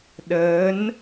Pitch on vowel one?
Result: rising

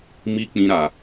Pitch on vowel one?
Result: high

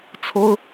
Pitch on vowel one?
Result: high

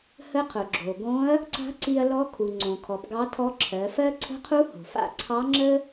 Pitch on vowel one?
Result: rising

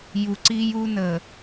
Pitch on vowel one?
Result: low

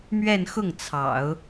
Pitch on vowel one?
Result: falling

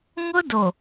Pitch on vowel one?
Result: high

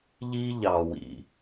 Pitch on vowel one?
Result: high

